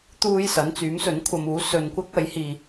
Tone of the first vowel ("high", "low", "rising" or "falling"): high